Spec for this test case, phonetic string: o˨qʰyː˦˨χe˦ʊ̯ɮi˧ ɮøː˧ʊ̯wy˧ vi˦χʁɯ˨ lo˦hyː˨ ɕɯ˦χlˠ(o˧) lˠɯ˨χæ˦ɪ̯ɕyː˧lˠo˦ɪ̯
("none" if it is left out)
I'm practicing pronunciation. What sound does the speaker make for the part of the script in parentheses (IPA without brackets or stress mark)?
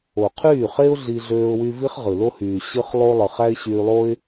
o˦